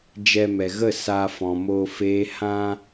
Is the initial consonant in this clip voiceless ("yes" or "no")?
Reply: no